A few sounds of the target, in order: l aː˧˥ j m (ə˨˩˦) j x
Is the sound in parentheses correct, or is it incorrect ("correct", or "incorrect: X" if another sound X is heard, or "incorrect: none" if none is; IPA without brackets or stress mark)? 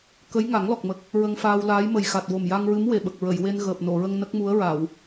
incorrect: ə˨˩